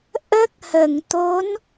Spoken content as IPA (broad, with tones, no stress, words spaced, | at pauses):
ʔə˦˥k̚hə˨˩˨ŋt̪o˧˥n